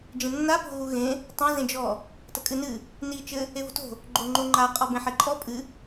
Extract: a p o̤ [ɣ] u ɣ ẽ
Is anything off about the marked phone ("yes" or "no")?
no